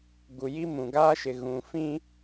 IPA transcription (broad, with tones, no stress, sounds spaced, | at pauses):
ɡ u˨ j i˦ m ũ˨ ɡ a˦ ʃ ɪ˨ ɣ ũ˨ f ĩ˦